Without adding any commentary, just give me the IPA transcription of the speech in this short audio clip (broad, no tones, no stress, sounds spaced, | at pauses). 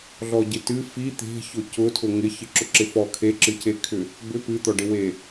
ɮ ɔ ɟ ɪ t ɨ f i t̪ e̤ ç ʊ c ʊ tʰ ʊ ŋ ɪ ç ɨ ǁ ʊ ǁ ɪ f ɔ kʰ e ǁ ɨ c e kʰ ʏ | b ʏ p ɨ t̪ ɔ ɖ ɪ w e